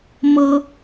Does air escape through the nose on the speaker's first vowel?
no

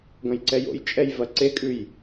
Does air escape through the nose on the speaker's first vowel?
yes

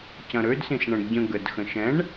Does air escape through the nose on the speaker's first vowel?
yes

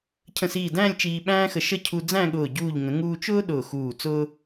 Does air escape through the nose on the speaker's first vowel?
yes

